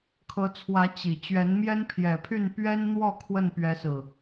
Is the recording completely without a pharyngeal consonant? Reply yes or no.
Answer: yes